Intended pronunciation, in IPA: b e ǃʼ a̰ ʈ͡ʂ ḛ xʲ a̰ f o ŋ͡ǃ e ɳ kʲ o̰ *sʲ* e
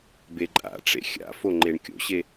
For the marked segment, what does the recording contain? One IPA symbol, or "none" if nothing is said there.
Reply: ɕ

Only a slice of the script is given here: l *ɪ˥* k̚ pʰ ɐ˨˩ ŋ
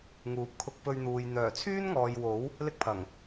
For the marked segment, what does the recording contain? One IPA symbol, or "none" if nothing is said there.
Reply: ɪ˥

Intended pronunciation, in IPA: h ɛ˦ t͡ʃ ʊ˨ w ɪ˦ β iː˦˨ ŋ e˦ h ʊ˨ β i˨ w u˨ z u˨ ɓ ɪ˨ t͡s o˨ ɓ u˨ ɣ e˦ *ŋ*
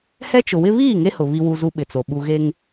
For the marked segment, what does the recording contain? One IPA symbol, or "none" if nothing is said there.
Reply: ŋ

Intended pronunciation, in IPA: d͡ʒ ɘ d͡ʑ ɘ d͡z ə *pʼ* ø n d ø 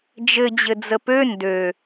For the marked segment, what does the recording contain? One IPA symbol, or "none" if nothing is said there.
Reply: p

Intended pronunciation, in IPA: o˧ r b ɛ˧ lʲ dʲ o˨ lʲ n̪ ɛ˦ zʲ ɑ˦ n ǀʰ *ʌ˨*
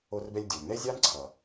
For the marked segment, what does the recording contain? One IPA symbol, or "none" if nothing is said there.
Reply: ʌ˨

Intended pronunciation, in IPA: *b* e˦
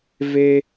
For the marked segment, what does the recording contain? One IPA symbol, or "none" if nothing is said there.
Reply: v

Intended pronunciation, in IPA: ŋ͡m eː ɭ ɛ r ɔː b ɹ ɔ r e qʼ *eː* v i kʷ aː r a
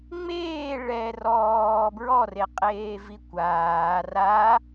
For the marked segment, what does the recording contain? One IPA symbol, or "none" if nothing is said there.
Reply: eː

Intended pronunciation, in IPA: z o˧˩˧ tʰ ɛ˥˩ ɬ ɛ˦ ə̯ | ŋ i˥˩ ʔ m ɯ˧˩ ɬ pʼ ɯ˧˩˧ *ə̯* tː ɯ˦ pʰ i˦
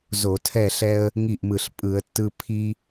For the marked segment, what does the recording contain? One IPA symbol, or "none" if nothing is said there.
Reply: ə̯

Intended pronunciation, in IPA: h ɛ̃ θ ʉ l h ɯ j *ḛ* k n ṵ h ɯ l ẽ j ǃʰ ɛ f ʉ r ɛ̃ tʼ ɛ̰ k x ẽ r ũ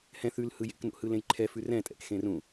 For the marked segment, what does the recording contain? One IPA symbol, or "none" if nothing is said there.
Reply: ḛ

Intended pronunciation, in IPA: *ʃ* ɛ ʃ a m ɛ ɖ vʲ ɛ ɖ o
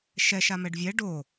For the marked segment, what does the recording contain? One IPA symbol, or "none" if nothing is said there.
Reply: ʃ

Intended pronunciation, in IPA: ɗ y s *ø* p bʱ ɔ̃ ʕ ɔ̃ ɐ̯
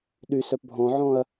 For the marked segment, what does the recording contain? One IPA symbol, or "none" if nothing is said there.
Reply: œ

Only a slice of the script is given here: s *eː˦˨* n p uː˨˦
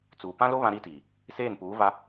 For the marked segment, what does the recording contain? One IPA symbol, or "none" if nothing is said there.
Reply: eː˦˨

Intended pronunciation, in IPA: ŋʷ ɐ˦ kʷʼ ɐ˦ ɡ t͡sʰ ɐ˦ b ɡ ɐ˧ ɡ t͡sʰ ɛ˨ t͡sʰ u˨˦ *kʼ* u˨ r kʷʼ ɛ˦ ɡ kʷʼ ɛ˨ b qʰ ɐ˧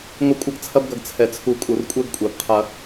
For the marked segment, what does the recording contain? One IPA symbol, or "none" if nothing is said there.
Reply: kʼ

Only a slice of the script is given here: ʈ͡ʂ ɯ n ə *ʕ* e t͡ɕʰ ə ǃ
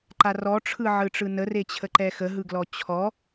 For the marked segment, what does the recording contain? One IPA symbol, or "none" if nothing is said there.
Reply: r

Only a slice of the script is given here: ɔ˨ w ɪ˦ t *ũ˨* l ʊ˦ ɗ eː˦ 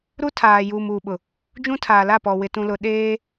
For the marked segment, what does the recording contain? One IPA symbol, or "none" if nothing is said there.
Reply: ũ˦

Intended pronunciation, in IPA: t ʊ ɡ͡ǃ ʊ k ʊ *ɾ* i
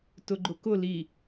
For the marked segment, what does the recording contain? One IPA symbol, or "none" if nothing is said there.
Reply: l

